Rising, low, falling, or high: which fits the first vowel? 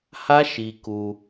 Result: high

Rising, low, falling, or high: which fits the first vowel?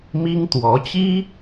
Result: high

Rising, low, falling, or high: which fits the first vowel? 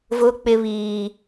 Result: high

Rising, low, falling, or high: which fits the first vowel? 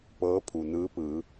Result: rising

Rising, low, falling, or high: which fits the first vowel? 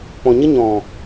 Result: low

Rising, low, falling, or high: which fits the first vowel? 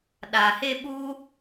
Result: low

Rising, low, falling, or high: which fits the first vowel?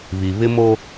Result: low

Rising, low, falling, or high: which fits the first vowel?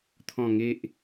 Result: low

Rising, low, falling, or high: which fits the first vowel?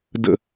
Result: low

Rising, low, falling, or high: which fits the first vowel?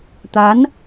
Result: rising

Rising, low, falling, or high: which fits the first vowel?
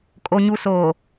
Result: low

